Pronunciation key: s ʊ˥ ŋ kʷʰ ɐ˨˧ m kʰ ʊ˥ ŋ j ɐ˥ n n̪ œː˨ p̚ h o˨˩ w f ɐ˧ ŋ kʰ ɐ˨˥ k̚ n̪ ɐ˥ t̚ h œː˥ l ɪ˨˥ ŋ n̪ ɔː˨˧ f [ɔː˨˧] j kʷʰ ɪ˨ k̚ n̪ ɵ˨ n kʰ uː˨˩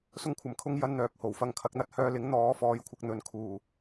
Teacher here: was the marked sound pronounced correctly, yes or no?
yes